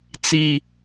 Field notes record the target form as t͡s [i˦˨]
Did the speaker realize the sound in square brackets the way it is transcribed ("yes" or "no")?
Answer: no